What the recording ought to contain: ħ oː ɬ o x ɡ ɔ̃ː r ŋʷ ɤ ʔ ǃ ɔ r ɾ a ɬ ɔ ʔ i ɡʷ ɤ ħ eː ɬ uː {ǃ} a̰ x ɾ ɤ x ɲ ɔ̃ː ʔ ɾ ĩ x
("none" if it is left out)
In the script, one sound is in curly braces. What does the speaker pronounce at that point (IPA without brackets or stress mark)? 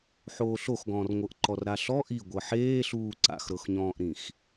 ǀ